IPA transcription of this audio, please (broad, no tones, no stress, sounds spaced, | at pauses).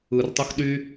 ɯ r tˤ u x ɗ y